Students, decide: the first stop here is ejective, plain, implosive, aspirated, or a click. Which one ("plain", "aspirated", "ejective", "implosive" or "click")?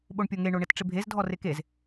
implosive